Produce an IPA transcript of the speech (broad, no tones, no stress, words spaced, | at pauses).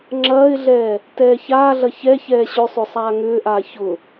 ŋ͡ǁɐːɪ̯ɮɛː | tɛːçaːɮɐ çɛ çɛːɕʏsˤʏːsˤ aːŋʏːʔaː çʊ